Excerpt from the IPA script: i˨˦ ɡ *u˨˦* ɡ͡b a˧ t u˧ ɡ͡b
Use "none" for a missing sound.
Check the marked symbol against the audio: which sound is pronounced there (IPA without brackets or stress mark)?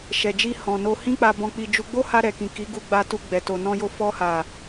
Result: u˧